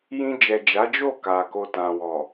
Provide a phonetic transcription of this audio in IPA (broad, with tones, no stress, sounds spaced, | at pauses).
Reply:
j ĩ˧ d͡ʒ ɛ˨ d͡ʒ a˨˦ d͡ʒ o˦˨ k a˨ k o˧ t ã˨ w ɔ˨